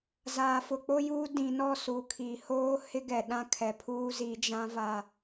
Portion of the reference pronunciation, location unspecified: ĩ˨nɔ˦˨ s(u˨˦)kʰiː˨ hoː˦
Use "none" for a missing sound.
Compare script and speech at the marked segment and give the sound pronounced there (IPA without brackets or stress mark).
u˨˦